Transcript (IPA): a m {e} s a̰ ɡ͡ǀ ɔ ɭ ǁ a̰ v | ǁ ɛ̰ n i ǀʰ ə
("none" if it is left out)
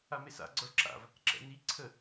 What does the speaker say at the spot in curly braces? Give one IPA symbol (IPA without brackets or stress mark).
e